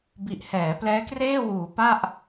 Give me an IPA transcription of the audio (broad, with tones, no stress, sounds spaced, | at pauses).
b i˨˩ ʔ h ɛː˩˦ p l ɛː˦˥ k r eː˥˩ w uː˩˦ p a˥˩ ʔ